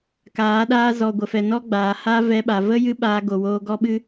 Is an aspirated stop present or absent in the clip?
absent